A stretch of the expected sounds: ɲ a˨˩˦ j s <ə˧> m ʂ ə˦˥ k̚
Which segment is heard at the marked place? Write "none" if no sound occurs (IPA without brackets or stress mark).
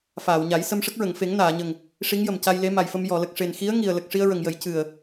ə˧